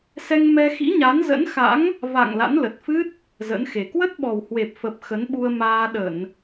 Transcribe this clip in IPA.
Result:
sɛ˧ŋmɛ˧xḭ˧˥ɲa˨˦n zə̰˧˥nxa̰˧˥ŋ | va̰˧˨ŋ la̰˧˥nlə˨˩t̚fɨ˦˥t̚ | zə̰˧˥nxe˨˩ kwə˦˥t̚ɓɔ˨˩whwe˨˩p̚ fə˨˩p̚ xə˨˦nɓu˧ə̯maː˧ ɗə˧˩˨n

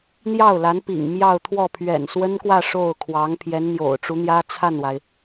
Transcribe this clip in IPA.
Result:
n̪jɑ˥˩ʊ̯la˧˥n pḭ˨˩ŋ mjɑ˥˧ʊ̯t̪ʰwɔ˥˩ pʰɥɛ̰˨˩nswə˥nkwä˥˧ ʂo˥˩ʊ̯kʰwɑ˧˥ŋ pʰjɛ˧˥nn̪jo̰˨˩ʊ̯ʈ͡ʂu˧˥n̪jä˥ t͡sʰa˥˩nwa˩ɪ̯

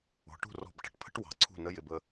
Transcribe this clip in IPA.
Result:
ɔ̤˩˧ʈṳ˥˩rɔ̤˧˩b ʈə̤˧˩ʈpʰə̤˦˥ʈ wɑ̤˩˧ǀʰṳ˥˩nə˦˥jɪ˩˧˩b ə˥˩

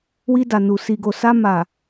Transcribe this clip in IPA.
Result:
wi˧da˨nu˨ si˨ɡo˨sa˧ ma˨

